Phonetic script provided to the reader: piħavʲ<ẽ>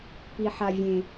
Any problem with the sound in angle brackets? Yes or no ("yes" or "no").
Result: no